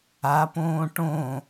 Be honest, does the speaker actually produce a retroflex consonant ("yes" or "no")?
yes